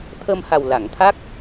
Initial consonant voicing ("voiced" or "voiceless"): voiceless